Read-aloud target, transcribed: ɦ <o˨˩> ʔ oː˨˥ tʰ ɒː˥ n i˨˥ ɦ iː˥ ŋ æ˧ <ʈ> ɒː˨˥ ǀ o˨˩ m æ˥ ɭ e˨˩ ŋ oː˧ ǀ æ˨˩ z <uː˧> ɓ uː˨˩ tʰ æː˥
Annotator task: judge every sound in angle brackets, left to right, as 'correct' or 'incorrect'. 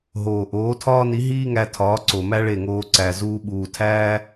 incorrect, incorrect, correct

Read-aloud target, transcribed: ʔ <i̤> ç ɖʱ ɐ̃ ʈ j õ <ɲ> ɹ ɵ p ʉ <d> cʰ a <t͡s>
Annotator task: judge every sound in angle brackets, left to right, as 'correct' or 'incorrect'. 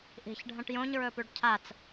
correct, correct, incorrect, correct

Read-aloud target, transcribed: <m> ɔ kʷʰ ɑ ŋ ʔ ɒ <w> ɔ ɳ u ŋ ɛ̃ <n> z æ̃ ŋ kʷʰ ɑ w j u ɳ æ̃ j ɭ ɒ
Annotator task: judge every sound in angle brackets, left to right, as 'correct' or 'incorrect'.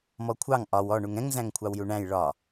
correct, correct, incorrect

